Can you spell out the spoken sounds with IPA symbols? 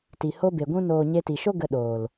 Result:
ti˨ho˧be˨ɡʷũ˧ noː˨ ɲe˧ti˨ʃo˦ ɡə˧ɗoː˨l

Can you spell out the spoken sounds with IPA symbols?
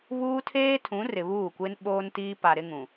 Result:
βuː˦ tʰeː˦tʰũ˨˦ rɪ˨βuː˦˨kʷe˦n ɓoː˦ntiː˦ pa˨ɾɪ˦ŋũ˨

